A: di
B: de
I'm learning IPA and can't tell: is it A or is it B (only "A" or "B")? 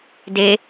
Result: B